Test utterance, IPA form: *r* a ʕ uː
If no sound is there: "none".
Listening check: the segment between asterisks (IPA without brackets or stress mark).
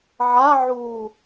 ʕ